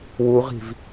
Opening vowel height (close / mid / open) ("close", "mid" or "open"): close